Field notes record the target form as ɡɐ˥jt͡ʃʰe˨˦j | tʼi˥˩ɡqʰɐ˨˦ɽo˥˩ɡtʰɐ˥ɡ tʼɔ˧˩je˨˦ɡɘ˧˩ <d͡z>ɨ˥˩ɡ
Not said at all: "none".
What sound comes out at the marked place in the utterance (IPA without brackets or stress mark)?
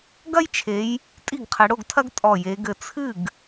t͡sʰ